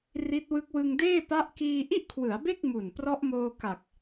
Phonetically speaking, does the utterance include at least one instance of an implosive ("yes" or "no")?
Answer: no